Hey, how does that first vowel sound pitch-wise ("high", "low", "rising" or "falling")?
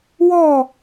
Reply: falling